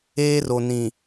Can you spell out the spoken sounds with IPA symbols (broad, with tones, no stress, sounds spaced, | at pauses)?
eː˦ r o˨ n ĩ˨